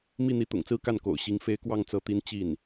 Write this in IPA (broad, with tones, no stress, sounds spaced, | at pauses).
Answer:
m i˥˩ n̪ i˧˥ t̪ ʊ̰˨˩ ŋ t͡s ɹ̩˥ k a˥˩ n k o̰˨˩ ʊ̯ ɕ i˧˥ ŋ f e˧˥ ɪ̯ k w ɑ˥˩ ŋ t͡s ɤ˧˥ t̪ i˧˥ n t͡ɕ i˥˩ n